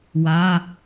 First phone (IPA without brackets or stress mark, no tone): w